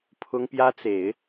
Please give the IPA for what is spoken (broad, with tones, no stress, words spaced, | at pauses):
pʰʊ˥ŋpjä˥t͡se˨˩˦ɪ̯